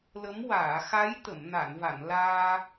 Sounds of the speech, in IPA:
lə˧˥m waː˨˩˨xa˧˥j t̪ə˨˩˨mna˨˩˨nva˨˩˨nlaː˧

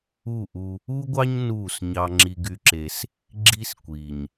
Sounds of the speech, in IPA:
u˦˨ʔu˦ | u˦ɡʷɑ˦ɲ nuː˦˨s ɲɑ˦ŋ͡ǁi˦ɡy˦ǁe˦s | ɡ͡ǁi˦skʷiː˨ɲ

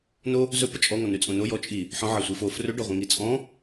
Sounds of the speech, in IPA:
no | zɵpə t͡ʃʼɔŋɔ nʉt͡sʼõno jɔt͡ʃʼi | ħɔ̃ ʕɐsʷifo frɵɖɔʁʷĩ ŋit͡sʼɔ̃

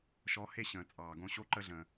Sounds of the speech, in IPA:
ʃɔ˨˦he˧ ɕə̃ː˨t͡sʼɑː˨ɡõ˧ ɕo˧ǃə˧ɮə̃ː˨

